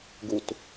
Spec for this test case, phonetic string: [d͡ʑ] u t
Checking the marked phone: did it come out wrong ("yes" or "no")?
yes